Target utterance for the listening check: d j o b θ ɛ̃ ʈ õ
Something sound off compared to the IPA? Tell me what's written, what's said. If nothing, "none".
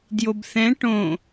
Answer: none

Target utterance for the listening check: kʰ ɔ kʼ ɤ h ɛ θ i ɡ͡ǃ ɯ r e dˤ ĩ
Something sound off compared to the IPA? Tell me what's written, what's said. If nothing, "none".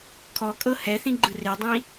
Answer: i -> ĩ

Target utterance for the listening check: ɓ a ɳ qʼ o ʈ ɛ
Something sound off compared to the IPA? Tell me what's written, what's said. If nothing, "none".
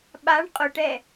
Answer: none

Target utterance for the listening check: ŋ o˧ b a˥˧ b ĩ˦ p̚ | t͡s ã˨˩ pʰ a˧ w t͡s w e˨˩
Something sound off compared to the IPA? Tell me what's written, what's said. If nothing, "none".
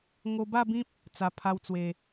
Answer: ã˨˩ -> a˨˩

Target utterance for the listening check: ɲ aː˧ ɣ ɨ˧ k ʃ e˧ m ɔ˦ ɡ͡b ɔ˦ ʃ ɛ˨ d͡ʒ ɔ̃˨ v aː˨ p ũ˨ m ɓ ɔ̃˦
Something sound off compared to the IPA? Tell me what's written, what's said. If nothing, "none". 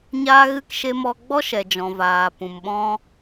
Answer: none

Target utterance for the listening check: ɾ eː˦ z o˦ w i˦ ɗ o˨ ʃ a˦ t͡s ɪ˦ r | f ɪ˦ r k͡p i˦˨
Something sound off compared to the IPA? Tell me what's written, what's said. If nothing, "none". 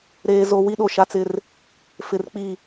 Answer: none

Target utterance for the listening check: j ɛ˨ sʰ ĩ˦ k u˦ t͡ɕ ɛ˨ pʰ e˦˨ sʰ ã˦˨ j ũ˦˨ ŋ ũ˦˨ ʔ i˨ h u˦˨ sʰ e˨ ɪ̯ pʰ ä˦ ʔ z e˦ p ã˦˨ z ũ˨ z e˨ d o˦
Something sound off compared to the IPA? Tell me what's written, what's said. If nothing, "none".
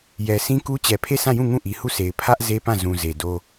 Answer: none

